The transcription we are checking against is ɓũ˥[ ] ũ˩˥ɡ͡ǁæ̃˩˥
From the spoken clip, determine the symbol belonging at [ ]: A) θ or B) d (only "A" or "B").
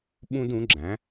B